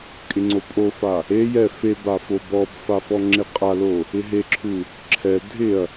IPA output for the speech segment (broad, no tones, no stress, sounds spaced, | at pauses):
kʼ ɪ ŋ͡ǀ o pʼ o f a | e j ɛ f e b a f o b ɔ b f a f ɔ ŋ͡ǁ e qʼ a l o | ɪ ɦ e ǁʰ u | ǁʰ ɛ dʱ ɪ ɐ̯